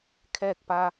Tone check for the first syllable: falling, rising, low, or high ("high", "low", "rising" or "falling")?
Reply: falling